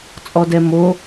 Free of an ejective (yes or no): no